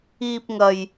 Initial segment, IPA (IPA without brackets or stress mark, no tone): iː